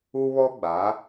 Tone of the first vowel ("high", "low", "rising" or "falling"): high